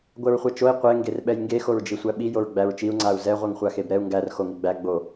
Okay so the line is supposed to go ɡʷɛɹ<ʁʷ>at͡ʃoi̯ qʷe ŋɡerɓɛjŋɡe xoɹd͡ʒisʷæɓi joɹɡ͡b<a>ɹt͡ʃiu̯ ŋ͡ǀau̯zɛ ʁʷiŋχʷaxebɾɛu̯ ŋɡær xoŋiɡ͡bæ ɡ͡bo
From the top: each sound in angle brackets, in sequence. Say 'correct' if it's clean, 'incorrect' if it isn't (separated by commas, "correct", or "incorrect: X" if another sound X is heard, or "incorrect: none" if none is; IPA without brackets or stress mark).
incorrect: χʷ, incorrect: æ